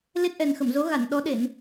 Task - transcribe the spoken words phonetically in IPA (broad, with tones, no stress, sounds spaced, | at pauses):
l e˦˥ t̚ ʔ ɛ˨˩ n x ə˧˩ m z o˨˦ ɣ a˧˩ n ɗ ɔ˨˦ ɗ e˧˩˨ n